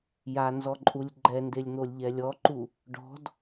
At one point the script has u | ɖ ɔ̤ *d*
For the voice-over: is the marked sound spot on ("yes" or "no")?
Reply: yes